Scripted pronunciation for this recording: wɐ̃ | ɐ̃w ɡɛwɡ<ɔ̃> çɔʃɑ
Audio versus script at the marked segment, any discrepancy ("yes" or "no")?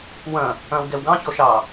yes